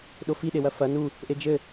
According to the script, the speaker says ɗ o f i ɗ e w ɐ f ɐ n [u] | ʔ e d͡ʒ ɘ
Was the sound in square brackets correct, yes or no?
yes